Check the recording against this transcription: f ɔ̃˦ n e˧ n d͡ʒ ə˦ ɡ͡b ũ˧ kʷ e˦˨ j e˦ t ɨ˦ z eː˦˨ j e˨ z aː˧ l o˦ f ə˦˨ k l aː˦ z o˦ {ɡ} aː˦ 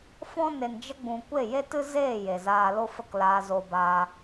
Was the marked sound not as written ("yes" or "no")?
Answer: yes